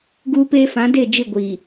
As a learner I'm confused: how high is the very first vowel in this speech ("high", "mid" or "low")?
high